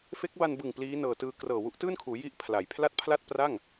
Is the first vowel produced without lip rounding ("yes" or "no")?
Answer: yes